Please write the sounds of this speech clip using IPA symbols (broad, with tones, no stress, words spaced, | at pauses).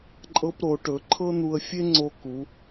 ǃʼɤ˧pɾo˩˧ʈɵ˩˧ ǃʰɤ˥n̪u˧ə̯fʲe˥ ŋ͡ǀo˧ku˩˧